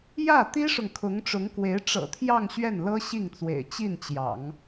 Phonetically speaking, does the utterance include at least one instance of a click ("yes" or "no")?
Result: no